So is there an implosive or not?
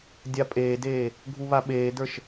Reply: yes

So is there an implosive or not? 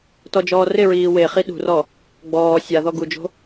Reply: yes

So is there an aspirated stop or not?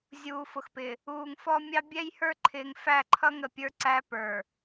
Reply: yes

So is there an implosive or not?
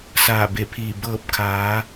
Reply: no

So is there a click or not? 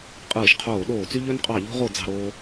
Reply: no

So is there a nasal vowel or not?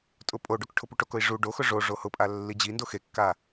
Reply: no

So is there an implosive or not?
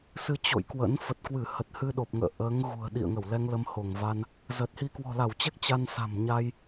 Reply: yes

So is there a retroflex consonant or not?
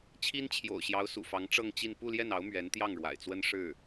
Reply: yes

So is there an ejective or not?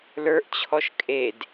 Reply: yes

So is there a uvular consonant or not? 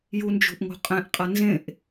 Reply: yes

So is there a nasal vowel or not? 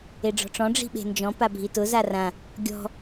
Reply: yes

